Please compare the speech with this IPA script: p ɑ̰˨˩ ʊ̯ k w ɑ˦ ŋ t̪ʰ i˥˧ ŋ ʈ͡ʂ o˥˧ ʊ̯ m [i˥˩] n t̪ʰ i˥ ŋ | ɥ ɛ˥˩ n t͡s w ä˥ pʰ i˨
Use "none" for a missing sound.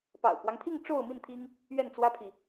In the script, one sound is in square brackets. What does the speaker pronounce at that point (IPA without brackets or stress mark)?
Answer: i˥˩